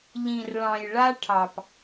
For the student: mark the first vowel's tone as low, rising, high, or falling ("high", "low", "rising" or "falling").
low